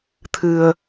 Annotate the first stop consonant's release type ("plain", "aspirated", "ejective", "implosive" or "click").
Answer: aspirated